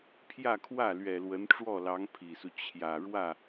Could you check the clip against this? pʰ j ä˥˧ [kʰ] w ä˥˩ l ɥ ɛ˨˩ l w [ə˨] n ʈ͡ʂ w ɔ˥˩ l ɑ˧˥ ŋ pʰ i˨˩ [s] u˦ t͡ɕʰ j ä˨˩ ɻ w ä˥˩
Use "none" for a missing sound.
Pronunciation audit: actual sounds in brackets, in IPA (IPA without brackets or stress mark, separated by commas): kʰ, ə˧˥, s